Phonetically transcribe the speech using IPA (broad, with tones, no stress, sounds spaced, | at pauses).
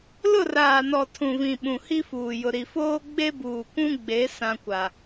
l ʊ˦˨ r aː˨ n ɔ˨ tʰ ũ˨ v ĩ˨ ɓ ũ˨ h i˦ f uː˨ j ʊ˨ ɾ i˨ f oː˦ ɡ͡b e˦ b uː˨ kʷ ũ˦ ɡ͡b e˨˦ s ã˦ kʷ a˨